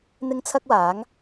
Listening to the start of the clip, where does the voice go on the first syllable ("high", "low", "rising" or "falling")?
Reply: high